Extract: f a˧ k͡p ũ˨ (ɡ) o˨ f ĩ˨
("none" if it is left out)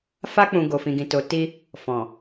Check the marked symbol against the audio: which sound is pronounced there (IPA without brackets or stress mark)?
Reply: ɡ